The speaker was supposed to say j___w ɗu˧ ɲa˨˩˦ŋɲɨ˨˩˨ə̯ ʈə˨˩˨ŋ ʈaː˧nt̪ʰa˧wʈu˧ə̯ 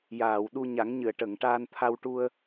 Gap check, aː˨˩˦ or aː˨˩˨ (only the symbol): aː˨˩˨